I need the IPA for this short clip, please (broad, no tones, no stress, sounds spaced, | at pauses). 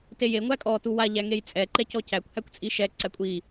t e j e ŋʷ æ kʼ ɔ t u w a ʎ æ ŋ e j t͡sʼ ɛ ǃ ɛ c ɔ c æ kʷ h æ kʷ t͡sʼ i ʃ ɛ ǀ æ kʷʼ i